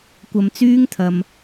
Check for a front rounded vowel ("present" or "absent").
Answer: present